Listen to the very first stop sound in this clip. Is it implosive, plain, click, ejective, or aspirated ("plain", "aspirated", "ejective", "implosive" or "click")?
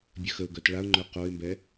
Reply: plain